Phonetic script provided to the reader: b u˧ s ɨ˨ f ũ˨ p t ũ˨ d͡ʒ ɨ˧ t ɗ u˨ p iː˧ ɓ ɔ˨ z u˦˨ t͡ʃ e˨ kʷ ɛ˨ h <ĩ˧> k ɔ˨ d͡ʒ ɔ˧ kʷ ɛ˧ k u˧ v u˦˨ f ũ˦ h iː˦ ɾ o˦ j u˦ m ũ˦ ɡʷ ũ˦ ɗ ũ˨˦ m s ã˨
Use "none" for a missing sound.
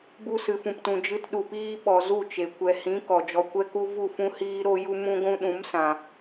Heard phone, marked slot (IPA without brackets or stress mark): ĩ˨˦